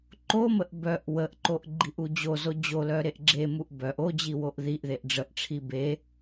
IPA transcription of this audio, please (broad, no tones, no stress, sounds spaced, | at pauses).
ǃ o m ə ʔ b œ ʔ w ə ʔ ǃ o ʔ ɡ͡ǃ i ʔ u d͡ʑ o z o d͡ʑ o l œ ɾ e ʔ ɡ͡ǁ e m u ʔ b œ ʔ o d͡ʑ i w o ʔ ð i ʔ ð e ʔ ɖ͡ʐ ə ʔ ʈ͡ʂʰ i b e